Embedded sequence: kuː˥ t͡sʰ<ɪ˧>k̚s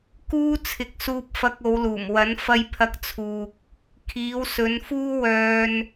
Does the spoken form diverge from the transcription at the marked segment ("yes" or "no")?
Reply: yes